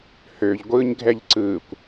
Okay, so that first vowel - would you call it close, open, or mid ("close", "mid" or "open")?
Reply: mid